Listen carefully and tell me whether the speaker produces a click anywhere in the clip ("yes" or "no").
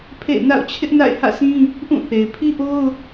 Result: no